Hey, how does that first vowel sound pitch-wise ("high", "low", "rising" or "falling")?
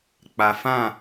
low